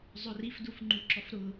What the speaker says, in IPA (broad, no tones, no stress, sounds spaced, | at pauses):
zˤ ø r i f d u f ŋ͡ǃ u ǁ ɔ f ɾ ʊ